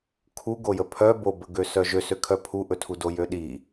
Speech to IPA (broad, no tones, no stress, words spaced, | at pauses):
kʰuɡojə pʰœ bobəɡøsœ ʒøsøkʰœ pʰuʔɵtʰudo jøɗi